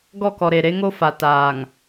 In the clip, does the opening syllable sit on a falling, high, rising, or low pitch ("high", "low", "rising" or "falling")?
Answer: falling